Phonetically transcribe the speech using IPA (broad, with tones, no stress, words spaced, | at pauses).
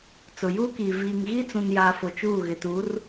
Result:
t͡sʊ˨juː˦kiː˨ viː˨ŋɣiː˦t͡sũ˨njaː˨ fo˨t͡ʃuː˦˨ɣɪ˨ tu˨˦r